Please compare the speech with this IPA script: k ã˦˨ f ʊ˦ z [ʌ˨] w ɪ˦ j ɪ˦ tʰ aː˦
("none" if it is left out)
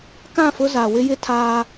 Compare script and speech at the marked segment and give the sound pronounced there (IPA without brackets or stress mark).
a˨